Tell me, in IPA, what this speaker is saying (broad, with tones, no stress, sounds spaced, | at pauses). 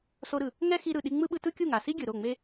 s o˧ ɾ ɯ˨ | ŋ ɛ˦ x i˧ ɾ ɯ˨ ɗ i˧ ŋ͡m ɯ˦ ɓ ɯ˧ t ɯ˦ kʲ u˦˨ ŋ a˨ s i˦ ɡʲ ɯ˨ ɾ o˦˨ ŋ͡m e˦